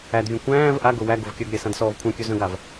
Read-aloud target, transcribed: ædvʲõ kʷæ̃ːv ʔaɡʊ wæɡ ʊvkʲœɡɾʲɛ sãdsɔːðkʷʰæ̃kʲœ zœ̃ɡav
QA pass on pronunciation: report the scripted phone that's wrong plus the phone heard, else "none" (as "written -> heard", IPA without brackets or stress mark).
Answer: ð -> v